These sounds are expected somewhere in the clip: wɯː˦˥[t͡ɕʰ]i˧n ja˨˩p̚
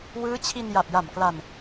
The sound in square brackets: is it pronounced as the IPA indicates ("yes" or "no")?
yes